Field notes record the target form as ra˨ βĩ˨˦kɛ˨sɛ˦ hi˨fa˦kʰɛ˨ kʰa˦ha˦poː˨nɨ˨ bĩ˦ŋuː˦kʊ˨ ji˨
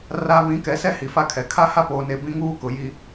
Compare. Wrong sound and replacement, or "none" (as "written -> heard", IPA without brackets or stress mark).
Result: ɨ˨ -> e˨